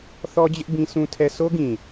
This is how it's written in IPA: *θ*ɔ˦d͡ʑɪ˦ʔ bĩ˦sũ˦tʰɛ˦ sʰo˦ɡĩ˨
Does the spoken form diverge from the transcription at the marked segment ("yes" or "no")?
no